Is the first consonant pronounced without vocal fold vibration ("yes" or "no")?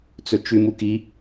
yes